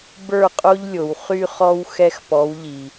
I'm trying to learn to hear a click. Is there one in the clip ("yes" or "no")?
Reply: no